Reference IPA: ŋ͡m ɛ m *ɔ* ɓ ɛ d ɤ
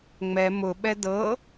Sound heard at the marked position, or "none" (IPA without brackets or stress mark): ʊ